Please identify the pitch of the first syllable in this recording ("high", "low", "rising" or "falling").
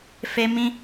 high